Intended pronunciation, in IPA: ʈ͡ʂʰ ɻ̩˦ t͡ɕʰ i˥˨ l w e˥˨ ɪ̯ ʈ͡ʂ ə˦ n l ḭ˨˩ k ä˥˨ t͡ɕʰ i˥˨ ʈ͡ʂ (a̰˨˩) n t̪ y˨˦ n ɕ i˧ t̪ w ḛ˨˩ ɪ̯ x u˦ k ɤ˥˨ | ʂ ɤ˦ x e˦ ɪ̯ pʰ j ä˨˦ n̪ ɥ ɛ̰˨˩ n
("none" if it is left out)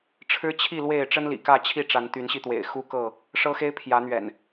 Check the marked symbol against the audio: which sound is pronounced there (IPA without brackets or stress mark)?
a˨˦